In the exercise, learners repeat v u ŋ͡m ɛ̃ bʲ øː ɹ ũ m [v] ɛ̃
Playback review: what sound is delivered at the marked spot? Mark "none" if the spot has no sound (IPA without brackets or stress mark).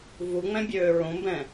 b